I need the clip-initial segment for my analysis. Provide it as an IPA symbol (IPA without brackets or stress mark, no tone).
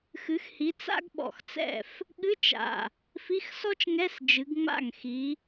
x